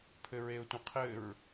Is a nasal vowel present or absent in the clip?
present